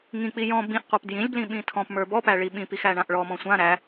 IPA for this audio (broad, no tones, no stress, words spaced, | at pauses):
ŋĩk͡pi jɔ̃ bĩʔqʷap djĩlʲblĩ ɓĩtʰɔ̃pmə˞ bɔpæ ɭiɓĩpix æɳãʔɭɔmɔ̃ sʷã ɾæ